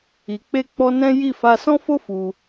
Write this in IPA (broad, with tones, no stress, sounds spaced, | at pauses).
i˨ k͡p e˧ k͡p ɔ˧ n ɛ̃˦ j i˦˨ f a˧ s ɔ̃˦ f o˦ f u˧